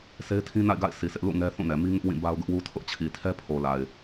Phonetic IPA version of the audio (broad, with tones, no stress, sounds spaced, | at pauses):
sʰ e˦ ɪ̯ tʰ ĩ˦ n a̰˦˨ ɪ̯ ɡ a̰˦˨ ɪ̯ s i˨ sʰ ɪ˦ ʔ l ṵ˦˨ ŋ ɛ˦ θ ũ˦˨ n ɛ˨ m i˦ ŋ ɪ˦ ʔ w ĩ˦˨ b a˦ ʊ̯ ɡ ʊ˦ ʔ w u˦ tʰ ʊ˦ ʔ t͡ɕʰ i˨ tʰ ɛ˦ pʰ o˨ l a˨ ɪ̯